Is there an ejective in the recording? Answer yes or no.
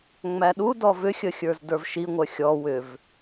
no